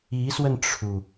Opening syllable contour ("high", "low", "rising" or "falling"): rising